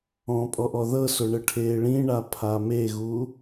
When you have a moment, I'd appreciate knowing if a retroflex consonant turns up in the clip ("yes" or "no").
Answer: yes